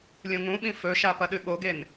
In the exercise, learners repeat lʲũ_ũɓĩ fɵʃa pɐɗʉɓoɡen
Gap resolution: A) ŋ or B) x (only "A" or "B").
A